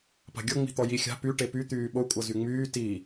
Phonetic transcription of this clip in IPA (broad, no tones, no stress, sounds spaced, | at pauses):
p a̤ ɡʲ ɤ ŋ͡m i̤ t̪ ɔ j i xʲ a̤ p y ʈ e p y t̪ yː ɓ o kʷʼ ɤ z y ŋ͡m yː t i